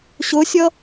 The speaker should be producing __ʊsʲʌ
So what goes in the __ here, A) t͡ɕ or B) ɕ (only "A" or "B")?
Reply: B